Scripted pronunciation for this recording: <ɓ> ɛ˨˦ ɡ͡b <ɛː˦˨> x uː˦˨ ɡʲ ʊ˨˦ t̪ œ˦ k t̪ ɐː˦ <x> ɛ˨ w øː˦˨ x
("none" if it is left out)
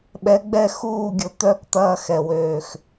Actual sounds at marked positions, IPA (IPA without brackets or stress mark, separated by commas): ɓ, ɛ˦˨, x